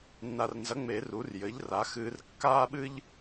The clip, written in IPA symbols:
nːa˨rnzɐ˩˥ŋ͡me˨˩˦ ru˩˥rjɘ˩˥ʎra˩˥ xɨː˨rkːaː˦ɓɨ˦ʎ

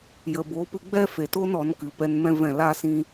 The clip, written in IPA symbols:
jə˨bo˨˦pɨ˧ ɡ͡bɛ˦fe˨to˦n ɔ˨˦nkɨ˨˦ pɛ˧nmɛ̃˦vɛ̃˦˨ laː˦sĩ˦

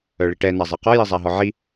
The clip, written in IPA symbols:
œɭiʈɛna zˤɛqɔ jizˤaɦɔʕi

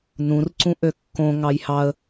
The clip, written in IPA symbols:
nũr ǀũʔøkːõ ŋɑjhɑə̯

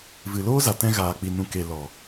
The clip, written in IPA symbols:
vɨ˨loː˦za˨ tɛ̃˧ɣaː˨k͡pi˨ nũ˨ke˨ lɔ˨

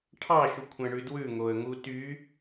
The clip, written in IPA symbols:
ʈʰɑʃukʷʰæ̃ɳʉ dwʉŋoə̯ŋu ty

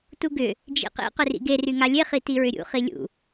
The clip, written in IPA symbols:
tuɡʏ | d͡ʒḭqḭ qʏrḭɡe ryŋalʲe χitiɹʏɾʲṵ χilʲṵ

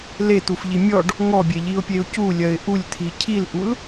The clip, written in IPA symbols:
let̪ufʎi mʲɔɖ | ŋɔbʲeʎiʊ̯pʲeʊ̯ culʲɜɪ̯ ʔulʲt̪ʰi cʰilʔul

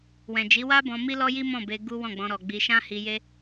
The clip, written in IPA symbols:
wɛ̃˨d͡ʒi˨˦wa˦bɔ̃˧ mi˦lɔ˦ji˦ mɔ̃˦˨be˧ ɡu˦ wɔ̃˦˨ɡ͡bɔ̃˧ɾɔ˨ ɡ͡bi˧ ʃã˦hi˧je˦

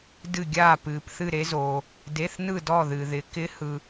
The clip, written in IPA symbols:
dɨ˥˧ɡʲaː˥˧ pɨː˧pθɨ˥˧ɾe˦˥zoː˧ | de˧˥˧θnɯ˥˧dɔ˥˧ ðɨ˧ðɪ˧ kɪ˦˥hɯ˧

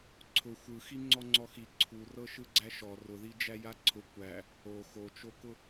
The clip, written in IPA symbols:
ǀʰʊ xʷɯxi ŋ͡ǀɔŋ͡ǀɔxi ǀʰurɤʃɯɡ͡ǀæ ʃɔ rʊðid͡ʒæ jaǀʰʊ kʷæ | o xot͡ʃokʊ

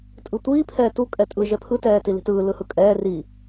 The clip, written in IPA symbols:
tʼɯtʷiː pʰɛːtu kʼɛtʼɯ ʒɛpʰɯ tɛːtili̤tɯː lɯhɯkʼɛː ri

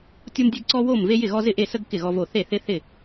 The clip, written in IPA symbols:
tʲo˦mdʲe˦ɡǀɔ˦wo˥˩m ve˦jɪ˥˩ɣɔ˦ zɪ˥˩ʔe˥˩sə˦ɡ kɪ˥˩ɣɔ˦vo˥˩ θe˥˩θɪ˦θɪ˥˩

